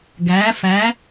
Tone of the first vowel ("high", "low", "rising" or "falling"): rising